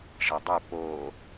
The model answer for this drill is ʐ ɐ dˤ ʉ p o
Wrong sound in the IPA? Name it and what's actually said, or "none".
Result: none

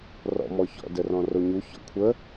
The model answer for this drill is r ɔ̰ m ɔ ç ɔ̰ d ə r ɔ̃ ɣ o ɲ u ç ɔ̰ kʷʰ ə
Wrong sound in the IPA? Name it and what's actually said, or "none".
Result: ɣ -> r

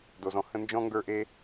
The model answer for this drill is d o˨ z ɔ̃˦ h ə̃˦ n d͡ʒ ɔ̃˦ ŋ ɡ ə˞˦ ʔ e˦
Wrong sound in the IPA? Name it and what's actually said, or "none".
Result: none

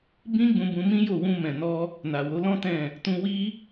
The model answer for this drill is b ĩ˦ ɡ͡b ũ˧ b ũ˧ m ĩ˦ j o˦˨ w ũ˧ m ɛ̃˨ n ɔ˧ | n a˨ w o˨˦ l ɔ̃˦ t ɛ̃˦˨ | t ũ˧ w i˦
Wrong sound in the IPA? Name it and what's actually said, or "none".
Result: none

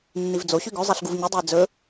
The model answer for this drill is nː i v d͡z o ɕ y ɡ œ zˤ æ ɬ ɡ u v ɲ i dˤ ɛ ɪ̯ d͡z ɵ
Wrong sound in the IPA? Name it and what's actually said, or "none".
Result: œ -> ɵ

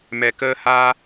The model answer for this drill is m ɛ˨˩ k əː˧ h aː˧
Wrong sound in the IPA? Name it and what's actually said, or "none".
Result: none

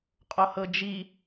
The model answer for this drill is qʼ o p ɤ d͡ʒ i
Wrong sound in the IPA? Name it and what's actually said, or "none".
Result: p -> h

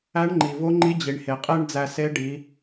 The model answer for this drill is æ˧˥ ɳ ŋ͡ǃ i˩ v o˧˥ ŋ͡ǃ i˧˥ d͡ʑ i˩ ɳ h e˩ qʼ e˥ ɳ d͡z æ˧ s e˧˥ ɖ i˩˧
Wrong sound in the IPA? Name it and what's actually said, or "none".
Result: none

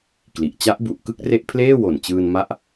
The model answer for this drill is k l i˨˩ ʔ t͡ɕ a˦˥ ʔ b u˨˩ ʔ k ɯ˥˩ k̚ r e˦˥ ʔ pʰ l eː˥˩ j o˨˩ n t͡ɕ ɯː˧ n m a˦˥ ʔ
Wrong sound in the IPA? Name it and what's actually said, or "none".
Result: j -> w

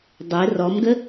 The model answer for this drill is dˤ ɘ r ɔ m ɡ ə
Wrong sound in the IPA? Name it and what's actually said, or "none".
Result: none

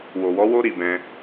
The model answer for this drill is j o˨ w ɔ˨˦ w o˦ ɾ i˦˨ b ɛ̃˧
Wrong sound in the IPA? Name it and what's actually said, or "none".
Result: j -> w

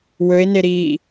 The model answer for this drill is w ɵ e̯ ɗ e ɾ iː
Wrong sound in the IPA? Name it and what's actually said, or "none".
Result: ɗ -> n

